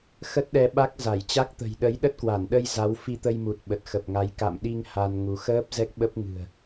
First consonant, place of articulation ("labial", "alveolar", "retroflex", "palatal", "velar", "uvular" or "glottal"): velar